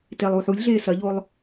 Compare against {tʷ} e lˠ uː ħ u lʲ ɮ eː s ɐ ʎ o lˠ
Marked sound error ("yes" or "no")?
yes